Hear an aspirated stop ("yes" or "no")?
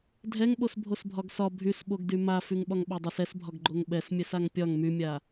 no